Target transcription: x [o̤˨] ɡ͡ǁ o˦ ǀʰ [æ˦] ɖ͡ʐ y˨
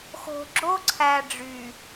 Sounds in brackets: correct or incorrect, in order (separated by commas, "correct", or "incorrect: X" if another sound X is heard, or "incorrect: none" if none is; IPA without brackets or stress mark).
correct, incorrect: æ˨